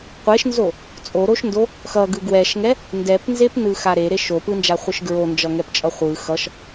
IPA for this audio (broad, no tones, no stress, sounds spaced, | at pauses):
qʷ e ʃ n z o | t͡sʼ o ɾ o ʃ n d o | x ʌ ɡ ɯ ɡ w ɛ ʃ ŋ ɛ | n d ɛ p n z e p n ɯ x a ɾ e ɾ e ʃ o p ɯ n d͡ʒ a χʷ ɯ ʃ ɡ ɹ o n d͡ʒ ʌ ŋ ɛ p t͡ʃʼ ʌ χʷ ɯ x ʌ ʃ